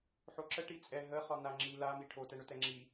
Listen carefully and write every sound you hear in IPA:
ħoǁə ʈit͡sʼɛ ɦəχɒ naŋ͡ǁi lami ʈʰotɛɳʏtɛ ŋ͡ǁi

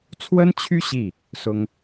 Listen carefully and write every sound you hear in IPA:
t͡sʰwə˥nt͡ɕʰy˥ ɕi˥˩ | sʊ˥ŋ

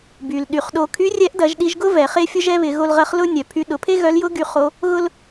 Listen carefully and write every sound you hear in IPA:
by˩l ɗy˩χɗo˧ kʰy˧˥rʲɛ˧˥ʔdɐ˩˧ʒ ɗi˧ʒɡʊ˥vɛ˩ χe˥fʲʊ˥ʒɛ˥βɪ˩˧ ɣo˧lʁɐ˧˥χ lʊ˥ nʲœ˩pʰy˧ ɗʊ˩˧pʰe˥ ɣœ˧˥l jʊ˧˥ɡy˩˧ χo˧˥ | ɣʊ˥l

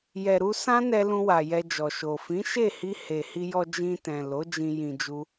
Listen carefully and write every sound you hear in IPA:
jɛ˨ɾu˧ sã˦nɛ˧ lũ˧wa˨ jɛ˧d͡ʒɔ˨ʃo˨ fĩ˨˦ʃe˦˨hi˧ he˨hi˧jɔ˧ d͡ʒĩ˧tɛ̃˨ lo˨˦d͡ʒĩ˧ jĩ˧d͡ʒu˦

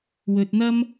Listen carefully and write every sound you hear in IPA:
wɵ˨t̚n̪ɐ˥m

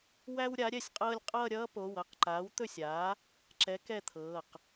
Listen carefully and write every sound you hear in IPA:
wæ˥wɾʲa˩˥ ɾʲɛ˥˩sʲqʼɤː˥lʲ qʼʌː˥˧ɾʲʌː˥po˩˧˩wʌ˥˧q ǃaː˩˥wt̪ɵ˥˩sʲ aː˩˥ | ǁɛ˩˥ kɛ˥˧t̪ʰɤː˩˧˩q

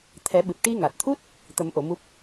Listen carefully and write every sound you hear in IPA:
t̪ʰɛ˨˩˦ɓɨ˨˩p̚ ʈi˧ŋa˨˩t̚t̪ʰu˦˥t̚ | t̪ə˨˩˦mʔo˨˩˨ mu˦˥p̚

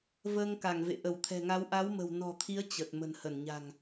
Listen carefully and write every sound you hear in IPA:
vəː˧ŋka˧˩ŋvḛ˧˨ ʔə˧˩wt̪ʰɛ̤˨˩ŋa˨˦w ʔa˨˦wmə̤˨˩wnɔ̤˨˩t̪ʰi˨˦ə̯ t͡ɕə˨˩t̚ mə̤˨˩nhə˧˩nɲa̤˨˩ŋ

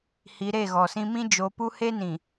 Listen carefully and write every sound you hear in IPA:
hi˨˦ɾe˦˨ɣɔ˨sĩ˦ mĩ˦d͡ʒo˨˦pu˦ he˦nĩ˨

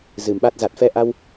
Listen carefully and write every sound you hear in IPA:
zɨ˨˩mɓa˦˥t̚ za˨˩t̚fɛ˧ʔa˧w

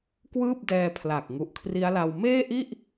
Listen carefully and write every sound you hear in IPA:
kwɯː˥˩p̚dɛː˧pʰla˨˩k̚ ŋu˨˩ʔkʰri˦˥a̯la˧w meː˥˩ʔi˥˩ʔ

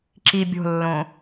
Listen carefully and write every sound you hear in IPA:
ǁi bʲo̤lːõ

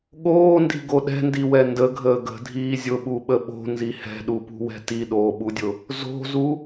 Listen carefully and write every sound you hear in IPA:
ɠoːndi̤ɡo ɗɛ̤ndiwɛ ndəɡʱəː ɡə̤dʱiː zʲʊɓuɓə ɓo̤nzi hɛ̤ɗupṳwɛ̤ tiɗoːɓudʲʊ | zo̤zu

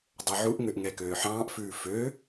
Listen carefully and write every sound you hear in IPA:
dˤɛʕuʔŋøʔ ŋɛkøːħɑ̃ːʔfʉː fø

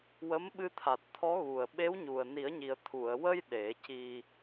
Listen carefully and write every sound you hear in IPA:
wə˧˥mɓɨ˧t̪ʰa˨˩t̚ t̪ʰɔ˧˥ɣu˨˩ə̯ ɓe˧˥wɲu˨˩ə̯ni˨˩˦ə̯ɲi˨˩ə̯ t̪ʰu˨˩˨ə̯ wə˧j ɗe˨˩˦ci˧

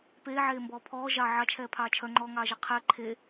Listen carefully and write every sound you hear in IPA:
peːʕeːmbɔː pʰɔː ʒɑ ʕɑt͡ʃʰɛːpʰɑː t͡ʃʰœŋ͡ǃɔːŋɑːʒɜ qʰɛ ǃʰe

